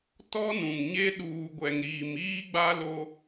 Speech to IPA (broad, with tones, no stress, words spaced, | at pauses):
tɔ˦nũ˨ŋɲe˦ ɗuː˨ɡʷɛ˨ŋɾiː˨m iː˦ɡ͡ba˦lo˦